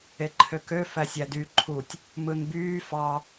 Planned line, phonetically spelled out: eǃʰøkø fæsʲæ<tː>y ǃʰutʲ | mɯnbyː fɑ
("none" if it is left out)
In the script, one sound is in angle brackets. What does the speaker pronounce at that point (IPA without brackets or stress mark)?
d